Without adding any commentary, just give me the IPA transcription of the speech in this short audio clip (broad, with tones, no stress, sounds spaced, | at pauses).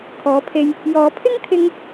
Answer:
kʰ ɔː˨˥ pʰ e˧ j | j ɔː˨ pʰ ɪ˥ ŋ t̪ʰ ɪ˧ ŋ